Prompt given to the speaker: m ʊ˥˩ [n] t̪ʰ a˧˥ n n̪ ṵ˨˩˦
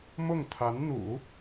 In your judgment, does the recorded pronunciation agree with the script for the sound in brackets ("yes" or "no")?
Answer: no